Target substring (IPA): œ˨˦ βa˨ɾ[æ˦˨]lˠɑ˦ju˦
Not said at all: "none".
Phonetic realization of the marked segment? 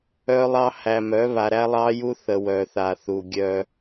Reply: æ˦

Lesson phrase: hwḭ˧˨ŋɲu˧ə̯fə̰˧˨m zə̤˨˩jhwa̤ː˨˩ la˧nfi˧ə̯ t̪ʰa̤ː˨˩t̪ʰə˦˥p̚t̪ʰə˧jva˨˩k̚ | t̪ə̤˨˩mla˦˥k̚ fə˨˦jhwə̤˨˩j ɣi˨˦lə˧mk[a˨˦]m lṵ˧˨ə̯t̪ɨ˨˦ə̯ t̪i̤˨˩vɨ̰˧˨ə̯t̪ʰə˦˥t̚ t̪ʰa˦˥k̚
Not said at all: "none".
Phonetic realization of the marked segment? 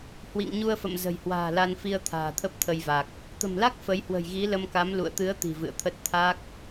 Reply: a˨˦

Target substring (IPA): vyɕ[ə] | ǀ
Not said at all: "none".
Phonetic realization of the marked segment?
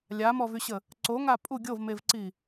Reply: ə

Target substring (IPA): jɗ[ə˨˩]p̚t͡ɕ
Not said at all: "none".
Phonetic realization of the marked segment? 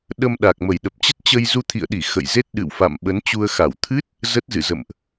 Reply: ə˨˩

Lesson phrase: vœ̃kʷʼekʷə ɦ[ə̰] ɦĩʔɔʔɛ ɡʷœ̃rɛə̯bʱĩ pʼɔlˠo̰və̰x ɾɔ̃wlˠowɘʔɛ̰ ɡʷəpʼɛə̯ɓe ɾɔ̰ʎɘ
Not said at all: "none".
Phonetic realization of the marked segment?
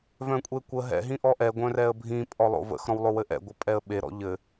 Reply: ɛ̰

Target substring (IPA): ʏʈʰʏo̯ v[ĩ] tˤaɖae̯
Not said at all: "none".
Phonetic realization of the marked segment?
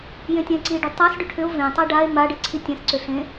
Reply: ẽ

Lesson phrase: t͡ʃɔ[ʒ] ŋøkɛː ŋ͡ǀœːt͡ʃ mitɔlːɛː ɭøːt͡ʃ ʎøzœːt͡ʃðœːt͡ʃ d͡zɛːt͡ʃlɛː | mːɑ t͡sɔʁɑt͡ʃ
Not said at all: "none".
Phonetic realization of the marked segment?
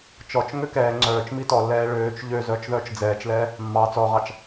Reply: t͡ʃ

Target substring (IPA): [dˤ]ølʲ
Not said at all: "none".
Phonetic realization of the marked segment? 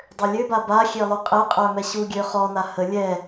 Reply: dˤ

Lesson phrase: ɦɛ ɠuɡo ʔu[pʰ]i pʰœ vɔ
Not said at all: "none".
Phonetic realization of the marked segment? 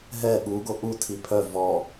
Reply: tʰ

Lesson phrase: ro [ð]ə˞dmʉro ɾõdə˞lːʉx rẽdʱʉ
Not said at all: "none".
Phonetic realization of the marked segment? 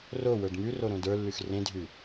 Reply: w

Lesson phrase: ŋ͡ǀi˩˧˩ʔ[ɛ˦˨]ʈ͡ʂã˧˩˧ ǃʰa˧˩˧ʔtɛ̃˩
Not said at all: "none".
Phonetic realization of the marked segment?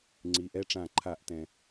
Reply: ɛ˦˨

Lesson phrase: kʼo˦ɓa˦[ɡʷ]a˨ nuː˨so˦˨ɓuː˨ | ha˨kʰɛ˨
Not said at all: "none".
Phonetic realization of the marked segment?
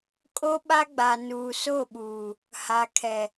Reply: ɡ͡b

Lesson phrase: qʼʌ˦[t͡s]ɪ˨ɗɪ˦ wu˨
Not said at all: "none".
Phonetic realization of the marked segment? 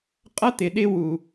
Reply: t̪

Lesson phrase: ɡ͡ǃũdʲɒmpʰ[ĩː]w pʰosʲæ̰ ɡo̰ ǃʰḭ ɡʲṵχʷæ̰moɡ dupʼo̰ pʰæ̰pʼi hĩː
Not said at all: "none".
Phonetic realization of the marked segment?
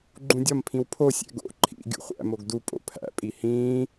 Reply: ĩ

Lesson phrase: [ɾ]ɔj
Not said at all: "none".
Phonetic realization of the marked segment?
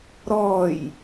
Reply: ɾ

